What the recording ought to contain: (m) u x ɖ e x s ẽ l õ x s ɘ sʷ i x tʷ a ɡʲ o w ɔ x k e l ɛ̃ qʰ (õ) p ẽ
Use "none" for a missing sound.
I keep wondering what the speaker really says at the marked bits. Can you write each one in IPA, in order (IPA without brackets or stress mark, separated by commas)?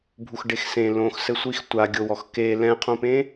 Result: bʱ, õ